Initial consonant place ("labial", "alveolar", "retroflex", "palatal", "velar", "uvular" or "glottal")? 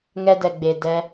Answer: velar